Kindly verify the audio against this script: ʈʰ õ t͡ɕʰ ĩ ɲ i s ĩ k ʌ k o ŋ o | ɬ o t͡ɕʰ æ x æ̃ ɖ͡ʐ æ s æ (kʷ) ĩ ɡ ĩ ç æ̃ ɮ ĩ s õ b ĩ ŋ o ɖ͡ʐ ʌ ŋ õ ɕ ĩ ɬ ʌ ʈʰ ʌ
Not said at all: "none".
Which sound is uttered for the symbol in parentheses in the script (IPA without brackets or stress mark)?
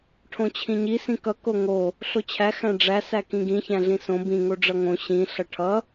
k